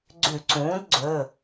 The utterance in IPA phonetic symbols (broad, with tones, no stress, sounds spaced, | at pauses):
ɡ͡ǀ ʉ˧˩˧ ǀ ũː˩˥ d ɡ͡ǀ ɵ˩˧˩